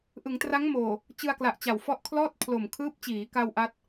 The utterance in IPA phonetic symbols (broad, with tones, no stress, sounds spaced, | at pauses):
ʔ ɯ˩˦ ŋ t r a˦˥ ŋ m oː˨˩ | t͡ɕ ɯ˧ a̯ k l a˨˩ ʔ t͡ɕ a˨˩ w f ɔ˦˥ ʔ kʰ l ɔː˥˩ t̚ pʰ l o˨˩ m kʰ ɯː˦˥ p̚ t͡ɕ iː˩˦ k a˧ w ʔ a˥˩ t̚